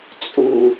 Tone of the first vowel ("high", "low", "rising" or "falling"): low